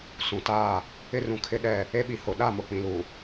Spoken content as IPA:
s ũ˨ t aː˦˨ | ɪ˦ r ũ˨ kʰ ɪ˦ ɗ ɛ˦˨ | e˦ ɓ i˨ h ʊ˨ ɗ a˦˨ m ʊ˨ k͡p ĩ˨ l u˨

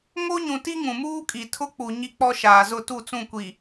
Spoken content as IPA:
ŋ o˦ ɲ ũ˨ t i˦ ŋ ũ˨ m uː˦ kʼ i˨ tʰ ʊ˦ k͡p u˨ ɲ i˦ k͡p ɔ˦ ʃ aː˨ z ʊ˦˨ t u˦˨ t͡s ũ˦˨ kʷ i˨

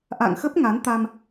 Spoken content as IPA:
ʔ a̰˧˨ ŋ x ə˦˥ p̚ ŋ a˨˦ n t̪ a˧ m

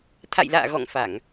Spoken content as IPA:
t̪ʰ a̰˧˨ j l a̰ː˧˨ ɣ ɔ̰˧˨ ŋ f a˧˩˨ ŋ

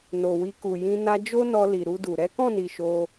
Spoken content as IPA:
n o˨ w i˧ k u˨ j ĩ˧ n a˧ d͡ʒ o˦ n ɔ˧ l i˨ ɾ u˧ d u˨ ɾ ɛ˨˦ k ɔ̃˦˨ n i˨ ʃ o˧

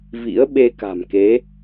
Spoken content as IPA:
v ḭ˧˥ ə̯ ɓ e˧ k a̤˨˩ m k e˨˦

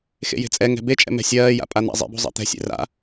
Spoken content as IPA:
x ḛ j e̤ t͡sʼ ɛ ŋ ɛ̤ b e t͡ʃʼ ɛ̰ m ɛ̤ sʲ ɜː j a̰ pʼ a n̪ a̰ zˤ ḛ b ṳ zˤ ɛ̰ t̪ ɛ̤ sʲ ḛ r a̰

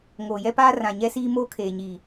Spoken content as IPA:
ŋ oː˨ j ɛ˦ p aː˦ r ã˨ ɲ ɛ˦ s iː˦ m oː˦ kʰ eː˨ ɲ iː˨

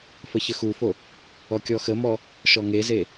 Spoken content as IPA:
f ə ç ə x u f o | ɔ kʲ ɔ x ə m ɔ | ʃ ɔ ŋ e z e

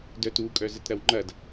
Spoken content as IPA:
d œ t u kʼ œ z ə t ɾ ɐ w ŋ͡ǃ ɐ d

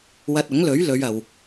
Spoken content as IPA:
w ɐ˧ t̚ ʊ˨˥ ŋ l ɵ˨˥ ɥ l ɵ˨˧ ɥ ɐ˨ w

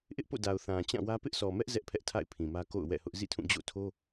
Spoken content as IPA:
ʔ ɪ˦ ʔ p o̰˦˨ d a˨ ʊ̯ θ ã˨ t͡ɕ ã˦˨ w ä˦ p ɪ˦ ʔ s ɔ˨ m ɛ˦ ʔ z ɛ˦ ʔ pʰ ɛ˦ ʔ tʰ a̰˦˨ ɪ̯ pʰ ĩ˨ m ä˦ k o̰˦˨ ʊ̯ w ɛ̰˦˨ h ʊ˦ ʔ z ḭ˦˨ tʰ ũ˦˨ d͡ʑ o̰˦˨ tʰ o˦

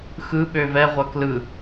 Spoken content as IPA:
x ɯ ɓ ø v ɛ ʁʷ ɐ k l ɯ

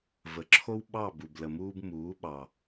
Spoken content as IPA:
v ə˨ ǁʰ o˦ w ɓ ɑ˦˨ b u˨ b l ə˨ m uː˧ b m uː˨˦ ɓ ɑ˨

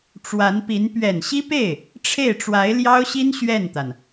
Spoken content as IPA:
ʈ͡ʂ w a˧˥ n p i˧˥ n p ɥ ɛ˨˩ n ɕ i˥ p e˥˩ ɪ̯ | ʈ͡ʂʰ e˥˩ ɪ̯ ʈ͡ʂ w a˧˥ ɪ̯ l j ɑ˥ ʊ̯ ɕ i˥ n ɕ ɥ ɛ˥˩ n t̪ a˩ n

